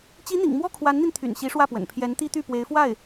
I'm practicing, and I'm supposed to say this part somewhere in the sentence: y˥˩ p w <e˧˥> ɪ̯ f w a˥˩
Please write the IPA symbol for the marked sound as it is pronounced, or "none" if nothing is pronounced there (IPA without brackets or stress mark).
e˧˥